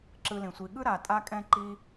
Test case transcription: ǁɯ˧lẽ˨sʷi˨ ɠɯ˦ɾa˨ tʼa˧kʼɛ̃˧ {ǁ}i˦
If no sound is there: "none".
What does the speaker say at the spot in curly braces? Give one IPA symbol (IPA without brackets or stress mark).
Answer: ǃ